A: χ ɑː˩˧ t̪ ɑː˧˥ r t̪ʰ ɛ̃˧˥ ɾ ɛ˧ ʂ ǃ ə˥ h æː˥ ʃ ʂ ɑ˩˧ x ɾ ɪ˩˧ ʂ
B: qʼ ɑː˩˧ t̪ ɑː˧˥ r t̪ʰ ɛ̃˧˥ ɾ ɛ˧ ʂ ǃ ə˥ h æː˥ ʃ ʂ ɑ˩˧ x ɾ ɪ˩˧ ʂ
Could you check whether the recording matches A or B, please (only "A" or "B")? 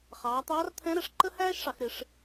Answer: A